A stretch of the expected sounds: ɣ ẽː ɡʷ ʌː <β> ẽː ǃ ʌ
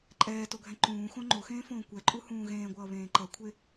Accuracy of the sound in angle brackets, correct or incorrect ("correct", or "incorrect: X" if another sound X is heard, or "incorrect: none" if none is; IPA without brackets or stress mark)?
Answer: correct